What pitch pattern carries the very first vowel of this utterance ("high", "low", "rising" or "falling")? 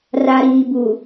low